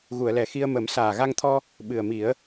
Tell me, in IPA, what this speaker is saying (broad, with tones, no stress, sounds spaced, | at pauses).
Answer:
ɣ u˨˩˨ ə̯ l ɛ˨˩ x i˧ ə̯ m ə˨˩˦ m s aː˨˩ ɣ a˧ ŋ t̪ʰ ɔ˧ | ɓ ɨ˨˩ ə̯ m i˨˩˦ ə̯